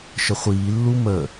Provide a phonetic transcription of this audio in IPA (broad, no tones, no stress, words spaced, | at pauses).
ʃəχʷiːlːu mə